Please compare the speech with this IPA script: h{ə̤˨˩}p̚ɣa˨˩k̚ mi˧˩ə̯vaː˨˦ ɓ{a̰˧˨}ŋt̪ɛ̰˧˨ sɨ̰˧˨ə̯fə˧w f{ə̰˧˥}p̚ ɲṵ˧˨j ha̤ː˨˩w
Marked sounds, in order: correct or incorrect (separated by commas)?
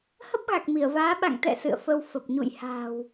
incorrect, correct, incorrect